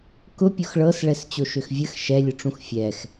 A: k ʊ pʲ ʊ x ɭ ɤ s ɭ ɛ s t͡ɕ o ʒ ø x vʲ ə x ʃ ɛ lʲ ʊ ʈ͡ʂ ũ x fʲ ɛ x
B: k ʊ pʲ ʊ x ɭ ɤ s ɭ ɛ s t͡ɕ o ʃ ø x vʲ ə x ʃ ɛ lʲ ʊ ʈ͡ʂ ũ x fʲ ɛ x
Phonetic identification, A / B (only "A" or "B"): B